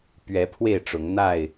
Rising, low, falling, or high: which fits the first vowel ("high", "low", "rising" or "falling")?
rising